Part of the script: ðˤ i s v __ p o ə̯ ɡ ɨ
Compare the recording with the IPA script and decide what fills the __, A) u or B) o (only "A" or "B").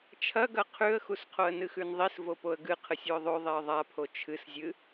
B